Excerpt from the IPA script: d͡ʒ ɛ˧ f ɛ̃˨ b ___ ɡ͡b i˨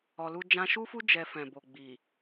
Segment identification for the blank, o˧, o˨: o˨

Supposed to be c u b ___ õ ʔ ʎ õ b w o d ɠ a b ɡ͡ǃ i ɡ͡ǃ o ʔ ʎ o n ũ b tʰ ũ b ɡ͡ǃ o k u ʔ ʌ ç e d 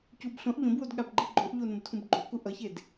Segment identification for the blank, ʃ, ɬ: ɬ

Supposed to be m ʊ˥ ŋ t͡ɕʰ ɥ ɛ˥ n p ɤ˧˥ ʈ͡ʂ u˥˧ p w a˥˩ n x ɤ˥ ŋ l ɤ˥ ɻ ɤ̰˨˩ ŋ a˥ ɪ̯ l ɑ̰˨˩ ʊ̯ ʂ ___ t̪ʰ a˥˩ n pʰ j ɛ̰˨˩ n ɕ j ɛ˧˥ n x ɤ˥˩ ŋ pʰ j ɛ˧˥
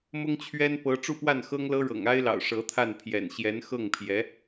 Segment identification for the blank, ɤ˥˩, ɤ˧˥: ɤ˧˥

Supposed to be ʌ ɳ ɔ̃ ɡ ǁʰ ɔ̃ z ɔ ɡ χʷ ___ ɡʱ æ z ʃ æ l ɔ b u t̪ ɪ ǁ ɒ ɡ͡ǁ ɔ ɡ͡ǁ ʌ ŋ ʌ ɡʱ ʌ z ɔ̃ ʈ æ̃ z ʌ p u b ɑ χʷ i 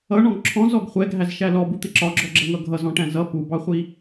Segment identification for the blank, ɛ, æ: ɛ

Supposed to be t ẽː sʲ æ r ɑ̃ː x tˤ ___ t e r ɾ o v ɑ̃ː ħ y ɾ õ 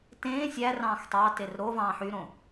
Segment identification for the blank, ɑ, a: ɑ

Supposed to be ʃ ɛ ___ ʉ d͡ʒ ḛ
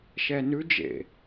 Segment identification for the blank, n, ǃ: n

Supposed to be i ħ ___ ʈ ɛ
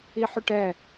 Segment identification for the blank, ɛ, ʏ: ʏ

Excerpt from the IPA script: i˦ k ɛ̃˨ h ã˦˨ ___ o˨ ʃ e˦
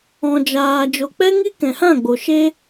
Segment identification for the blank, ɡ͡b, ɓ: ɡ͡b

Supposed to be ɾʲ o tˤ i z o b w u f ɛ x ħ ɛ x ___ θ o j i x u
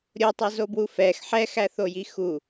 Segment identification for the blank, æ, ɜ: æ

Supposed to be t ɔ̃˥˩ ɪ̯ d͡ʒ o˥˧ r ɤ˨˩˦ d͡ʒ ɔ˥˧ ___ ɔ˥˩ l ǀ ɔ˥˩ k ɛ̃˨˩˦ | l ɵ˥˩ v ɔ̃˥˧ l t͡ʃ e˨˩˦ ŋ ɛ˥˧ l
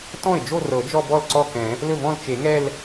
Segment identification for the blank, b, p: b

